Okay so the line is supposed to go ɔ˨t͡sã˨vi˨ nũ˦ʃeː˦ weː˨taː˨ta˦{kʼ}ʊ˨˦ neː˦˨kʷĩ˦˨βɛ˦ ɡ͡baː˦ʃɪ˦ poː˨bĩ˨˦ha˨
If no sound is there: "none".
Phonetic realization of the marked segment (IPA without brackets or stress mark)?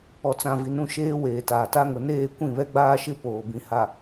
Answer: ŋ